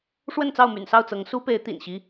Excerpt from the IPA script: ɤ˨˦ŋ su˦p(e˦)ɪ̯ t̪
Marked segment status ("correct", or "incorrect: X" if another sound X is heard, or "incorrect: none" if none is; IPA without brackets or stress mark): incorrect: e˨˦